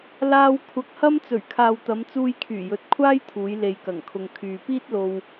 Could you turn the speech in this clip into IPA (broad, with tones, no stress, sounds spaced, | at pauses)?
l aː˧ w kʷʰ ɐ˧ k̚ h ɐ˥ m t͡s ɵ˨˩ ɥ kʰ aː˨ w t̪ ɐ˨˧ m t͡s uː˧ j kʰ yː˨˩ j ɵ˨˥ t̚ kʷʰ aː˥ j t̪ʰ uː˨˧ j l e˨ j k ɐ˨˩ ŋ kʰ ʊ˨ ŋ kʰ yː˨ p iː˥ t̚ l o˧ w